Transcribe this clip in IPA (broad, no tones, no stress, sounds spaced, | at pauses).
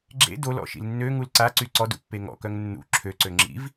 ɡ͡ǁ ḛ d o l ɔ̰ ʃ ḭ l nː ø ŋ u l ǀ a ǀ y ǀ ɔ d ṵ pː e ŋ ɔ̰ k œ ŋ nː ṵ ǁʰ ø ǀ ø ŋ͡ǁ ḭ v